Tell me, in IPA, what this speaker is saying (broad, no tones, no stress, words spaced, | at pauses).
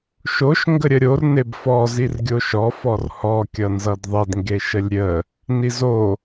ʃoʃ ŋɡəɾʲəɾʲor nebfɔ zirɡʲoʃɔ fɔrhɔ kʲʌnzʌdðˤed ŋɡeʃəlʲɾʲə | nizo